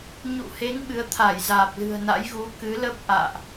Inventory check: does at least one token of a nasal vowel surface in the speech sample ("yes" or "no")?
no